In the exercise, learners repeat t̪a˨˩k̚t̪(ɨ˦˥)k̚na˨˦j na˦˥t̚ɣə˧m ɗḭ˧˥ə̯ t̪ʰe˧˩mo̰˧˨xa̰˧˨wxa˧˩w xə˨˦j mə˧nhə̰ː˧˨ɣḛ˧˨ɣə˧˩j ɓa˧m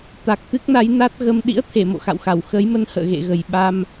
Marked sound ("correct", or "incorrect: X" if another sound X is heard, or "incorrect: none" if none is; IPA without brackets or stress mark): correct